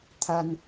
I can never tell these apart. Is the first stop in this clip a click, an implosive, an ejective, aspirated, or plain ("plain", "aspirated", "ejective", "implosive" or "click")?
aspirated